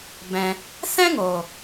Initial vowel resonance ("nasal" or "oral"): nasal